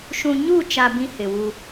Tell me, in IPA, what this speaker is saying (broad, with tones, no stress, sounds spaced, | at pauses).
ʃ ũ˨ ɲ u˦˨ t͡ʃ a˨ b ĩ˦ h ɪ˨ w u˦